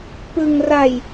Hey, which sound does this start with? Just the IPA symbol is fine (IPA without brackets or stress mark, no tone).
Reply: p